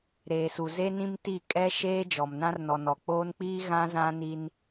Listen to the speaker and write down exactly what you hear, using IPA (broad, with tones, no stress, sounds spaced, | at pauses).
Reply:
ɾ eː˨ s u˨ z e˦ n ĩ˦ m t i˦˨ kʼ ɛ˦ ʃ eː˦ d͡ʒ ɔ˨ m n ã˦ r n ɔ˨ n ɔ˨ k͡p oː˦ n k͡p iː˦ ɣ ã˦ z ã˦ n i˦ n